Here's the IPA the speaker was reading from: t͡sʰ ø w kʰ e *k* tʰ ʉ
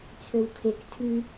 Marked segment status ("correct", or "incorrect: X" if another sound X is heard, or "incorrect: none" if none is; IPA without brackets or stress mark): correct